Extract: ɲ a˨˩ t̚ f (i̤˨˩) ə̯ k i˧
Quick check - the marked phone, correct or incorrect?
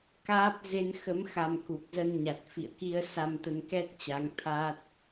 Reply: incorrect